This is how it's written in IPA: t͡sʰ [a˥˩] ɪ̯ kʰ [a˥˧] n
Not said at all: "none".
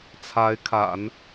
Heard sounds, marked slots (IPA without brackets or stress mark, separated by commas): a˧˥, a̰˨˩˦